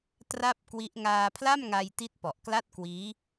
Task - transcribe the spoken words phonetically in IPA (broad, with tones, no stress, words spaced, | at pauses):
tra˥˩p̚kwi˦˥ʔ ŋaː˧pʰla˥˩mŋa˧jti˦˥t̚ pɔ˨˩ʔkla˥˩t̚ kwiː˦˥